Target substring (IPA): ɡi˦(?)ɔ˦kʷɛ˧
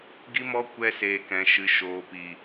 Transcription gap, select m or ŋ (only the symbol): m